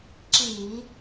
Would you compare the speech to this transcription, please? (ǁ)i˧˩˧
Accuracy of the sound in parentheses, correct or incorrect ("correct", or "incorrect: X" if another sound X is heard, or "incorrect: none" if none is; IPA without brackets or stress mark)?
correct